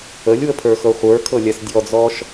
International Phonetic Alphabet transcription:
ə lʲ w ə pʰ ə˞ x ɤ χʷ ə˞ kʰ ɤ lʲ a s dʲ ɔ d͡z ɔ ʃ

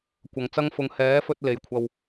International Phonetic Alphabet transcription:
kʷ ɐ˨˧ ŋ t͡s ɐ˥ ŋ f ʊ˧ ŋ h ɛː˨˥ f ɵ˧ t̚ l e˨ j kʷʰ ɐ˧ w

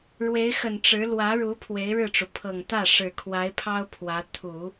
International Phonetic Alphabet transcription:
ɻ w e˧˥ ɪ̯ x ə˨˩ n ʈ͡ʂ ɻ̩˧˥ l w ä˧˥ ɻ u˧˥ pʰ w e˧˥ ɪ̯ ɻ ɻ̩˥˩ ʈ͡ʂ u˩ pʰ ɤ˨˩ ŋ t̪ ä˥˩ ʂ ɻ̩˨˩ kʰ w a˧˥ ɪ̯ pʰ ɑ˥ ʊ̯ pʰ w ä˧˥ t̪ʰ u˨˩˦

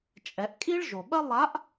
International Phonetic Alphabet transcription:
t͡ʃʼ ɛ˩˧ ʔ kʼ i˥ ɭ ʒ o˩ ɓ ɐ˥ lˠ a˧˥ ʔ

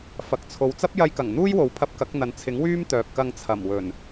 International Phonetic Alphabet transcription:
f ɐ˨ k̚ t͡sʰ o˨ w t͡s ɐ˥ p̚ j ɐ˧ j k ɐ˨˩ ŋ n̪ uː˥ j w o˨˥ w pʰ ɐ˧ p̚ k ɐ˨˥ k̚ n̪ ɐ˨ n t͡sʰ ɪ˨˥ ŋ w yː˥ m t̪ œː˨ p̚ k ɐ˧ ŋ t͡sʰ ɐ˨˩ m w ɵ˨˩ n

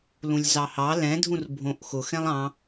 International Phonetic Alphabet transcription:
l ũ lʲ z ɑ h ɑ l ɛ̃ dʱ ũ r bʱ õ ʔ x ʊ x ɛ̃ lˠ ɑ̃

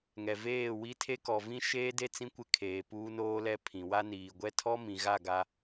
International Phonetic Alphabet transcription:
ŋ ɛ˨ v eː˦˨ w i˦ tʰ e˦ k ɔ˨ v ĩ˦ ʃ eː˦ d e˦ t͡s ĩ˦ kʷ ɪ˦˨ kʰ eː˨ p uː˦ n oː˦ l ɛ˦ pʰ ĩ˨ w a˦ n iː˨ ɡʷ ɛ˦ tʰ ɔ˦ m ĩ˨ ɣ a˦˨ ɡ a˦

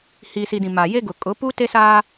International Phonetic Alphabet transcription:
h iː˨ s i˨ d ĩ˨ m a˨ j e˦ ɡ ʊ˨ kʼ ʊ˨˦ p u˦ t e˦ s aː˦

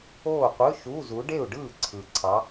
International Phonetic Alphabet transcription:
oː˥˨ qʷ ɯ˧˥˧ ʃ u˧˥˧ z u˨˦ ɖ e˥˨ u̯ ɖ ɯː˥˨ ǀʰ ɯ˨˩ ǀʰ ɑ˨˦

